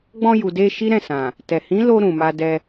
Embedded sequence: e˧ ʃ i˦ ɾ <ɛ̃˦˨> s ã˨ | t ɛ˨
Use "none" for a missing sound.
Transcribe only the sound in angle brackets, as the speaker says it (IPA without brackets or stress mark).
ɛ̃˦˨